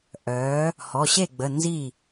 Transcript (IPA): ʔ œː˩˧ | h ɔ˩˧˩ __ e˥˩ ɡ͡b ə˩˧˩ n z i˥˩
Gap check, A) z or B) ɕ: B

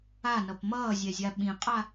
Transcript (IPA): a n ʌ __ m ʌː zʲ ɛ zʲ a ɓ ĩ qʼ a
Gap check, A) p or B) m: A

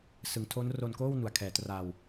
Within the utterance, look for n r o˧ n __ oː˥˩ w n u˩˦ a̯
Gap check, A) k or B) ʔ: A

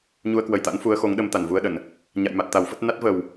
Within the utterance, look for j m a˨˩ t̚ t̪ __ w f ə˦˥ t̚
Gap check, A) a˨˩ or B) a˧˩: A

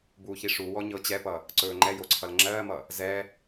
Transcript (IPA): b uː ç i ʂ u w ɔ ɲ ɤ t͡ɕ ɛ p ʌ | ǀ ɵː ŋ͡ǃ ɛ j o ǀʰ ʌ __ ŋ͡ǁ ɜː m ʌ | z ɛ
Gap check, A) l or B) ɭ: A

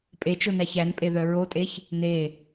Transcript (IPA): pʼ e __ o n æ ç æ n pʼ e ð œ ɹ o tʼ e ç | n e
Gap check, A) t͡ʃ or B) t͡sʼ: A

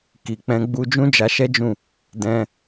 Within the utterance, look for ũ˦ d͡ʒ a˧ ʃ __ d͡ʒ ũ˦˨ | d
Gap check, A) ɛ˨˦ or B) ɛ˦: B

